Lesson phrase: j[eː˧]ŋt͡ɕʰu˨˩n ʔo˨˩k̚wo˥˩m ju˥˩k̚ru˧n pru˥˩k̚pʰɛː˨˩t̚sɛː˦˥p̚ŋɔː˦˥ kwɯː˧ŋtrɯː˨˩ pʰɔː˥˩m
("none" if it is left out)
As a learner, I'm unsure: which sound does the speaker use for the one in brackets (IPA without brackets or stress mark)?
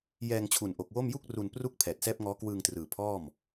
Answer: ɛː˧